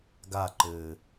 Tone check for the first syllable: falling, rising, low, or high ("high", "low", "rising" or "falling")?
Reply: falling